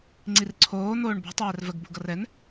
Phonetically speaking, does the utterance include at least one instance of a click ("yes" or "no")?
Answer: yes